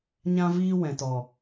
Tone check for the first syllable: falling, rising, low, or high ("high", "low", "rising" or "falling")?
high